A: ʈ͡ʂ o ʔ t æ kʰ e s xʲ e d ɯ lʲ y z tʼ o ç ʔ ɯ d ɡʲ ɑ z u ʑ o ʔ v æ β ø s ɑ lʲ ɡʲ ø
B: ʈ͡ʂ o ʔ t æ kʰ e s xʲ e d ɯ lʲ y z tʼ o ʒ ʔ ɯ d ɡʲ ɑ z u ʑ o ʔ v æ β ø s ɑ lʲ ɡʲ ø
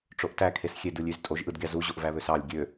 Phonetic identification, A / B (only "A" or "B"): B